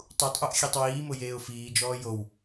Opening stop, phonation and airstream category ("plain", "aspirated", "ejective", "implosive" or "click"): plain